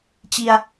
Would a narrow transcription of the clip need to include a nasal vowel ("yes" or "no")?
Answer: no